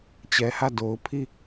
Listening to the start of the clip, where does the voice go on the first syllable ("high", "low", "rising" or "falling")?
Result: low